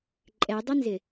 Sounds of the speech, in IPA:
ǃʼ ɛ dˤ ɪ n z ɪ

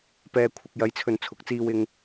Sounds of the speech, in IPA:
p ɛː˨ kʷʰ ɐ˨ k̚ j ɐ˨˥ j t͡sʰ ɵ˨ n t͡sʰ ʊ˨˥ k̚ t͡s iː˧ w ɪ˧ ŋ

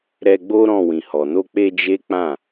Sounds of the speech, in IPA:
ɾ ɛ˧ ɡ͡b o˦ ɾ ɔ̃˦˨ w ĩ˨ h ɔ˨ n o˧ k͡p e˧ d͡ʒ e˦ k͡p ã˦˨

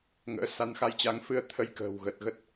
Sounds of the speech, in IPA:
ŋ ə̰ː˧˥ s a˧ n x a˧ j t͡ɕ a˨˦ ŋ f ɨ˧ ə̯ t̪ʰ ə˨˦ j k ə̤ː˨˩ w ɣ əː˨˩ t̚ ɣ ə˦˥ t̚

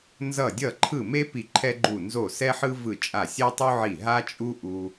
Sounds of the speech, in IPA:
n z ʌ˧˩ dʲ ʌ˧˩ ǃʰ ɯ˧˩ m e˦ p i˧˩ ǃʰ ɛ˦ ɡ͡ǃ u˧˩ n z o˧˩ s ɛ˦ ħ ɯ˦ v ɯ˧˩ t͡ʃʼ a˧˩ sʲ ɛ˦ tˤ u˦ ʕ i˧˩ ɦ a˦ t͡ʃʼ u˦ ʔ u˦

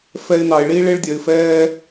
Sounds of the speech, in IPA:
f ɛ˧ ɪ̯ n ɑ˨ ɪ̯ ɭ i˦ ɭ e˦ ɭ dʲ œ˨ ɪ̯ f ɛː˦

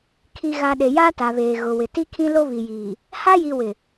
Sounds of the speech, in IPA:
kʰ i˨ ɣ a˨ ɗ e˨ j aː˦ t a˨ β eː˨ ɣ ʊ˨ w ɪ˨ t i˦ kʰ ĩ˦ l o˦ β i˨ j iː˨ | h a˦ j i˨ w ɪ˨

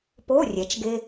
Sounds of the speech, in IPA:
p o˧˥˧ rʲ ɛ˩˧ t͡ʃ ɡ e˧

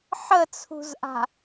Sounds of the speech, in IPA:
ħ ə t͡sʰ ṳ z ʔ a̤

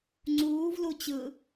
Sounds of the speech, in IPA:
ŋ͡ǀ uː v l u t͡ɕ ɯ

